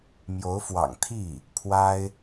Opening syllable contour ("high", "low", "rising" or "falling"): rising